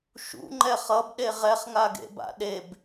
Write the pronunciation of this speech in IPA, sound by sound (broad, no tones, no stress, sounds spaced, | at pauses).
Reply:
ʃ ṵ ŋ͡ǃ ɛ χ ʌ b ɗ e ʁ ɛ χ ŋ a ɡ ḛ b a̰ ɗ e b